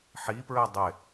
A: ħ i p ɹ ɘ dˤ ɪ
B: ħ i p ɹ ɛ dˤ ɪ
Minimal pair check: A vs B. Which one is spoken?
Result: B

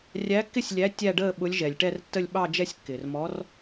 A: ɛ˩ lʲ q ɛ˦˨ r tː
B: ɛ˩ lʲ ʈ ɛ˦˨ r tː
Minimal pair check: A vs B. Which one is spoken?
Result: B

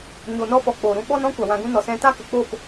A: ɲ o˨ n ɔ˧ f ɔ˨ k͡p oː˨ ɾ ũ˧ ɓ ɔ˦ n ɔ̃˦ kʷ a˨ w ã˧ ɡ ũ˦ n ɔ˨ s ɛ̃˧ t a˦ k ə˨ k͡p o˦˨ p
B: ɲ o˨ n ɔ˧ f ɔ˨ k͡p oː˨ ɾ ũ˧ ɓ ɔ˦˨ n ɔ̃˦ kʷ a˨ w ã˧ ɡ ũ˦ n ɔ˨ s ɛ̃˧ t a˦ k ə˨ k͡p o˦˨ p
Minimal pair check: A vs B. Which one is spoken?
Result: A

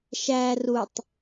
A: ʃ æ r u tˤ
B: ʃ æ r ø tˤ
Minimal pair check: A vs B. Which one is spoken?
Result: A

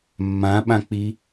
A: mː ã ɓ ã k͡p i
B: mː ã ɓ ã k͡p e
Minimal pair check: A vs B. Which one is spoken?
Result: A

